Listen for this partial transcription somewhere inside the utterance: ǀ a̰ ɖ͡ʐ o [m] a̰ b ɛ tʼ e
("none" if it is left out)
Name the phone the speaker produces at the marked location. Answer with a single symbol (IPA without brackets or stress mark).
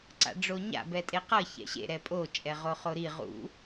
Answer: ɲ